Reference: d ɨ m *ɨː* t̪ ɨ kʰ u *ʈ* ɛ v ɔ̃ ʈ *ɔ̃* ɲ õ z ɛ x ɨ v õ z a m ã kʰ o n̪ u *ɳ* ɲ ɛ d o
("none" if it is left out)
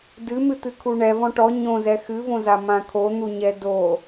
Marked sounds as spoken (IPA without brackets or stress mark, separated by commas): ɨ, ɳ, ɔ, none